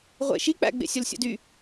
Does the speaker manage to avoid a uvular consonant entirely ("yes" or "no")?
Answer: no